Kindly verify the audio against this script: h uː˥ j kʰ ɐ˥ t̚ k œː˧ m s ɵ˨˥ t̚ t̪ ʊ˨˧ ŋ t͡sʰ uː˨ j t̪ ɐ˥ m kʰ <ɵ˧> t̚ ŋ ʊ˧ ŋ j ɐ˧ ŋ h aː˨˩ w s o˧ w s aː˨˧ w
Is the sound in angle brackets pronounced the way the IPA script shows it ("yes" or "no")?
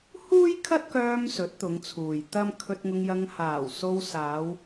yes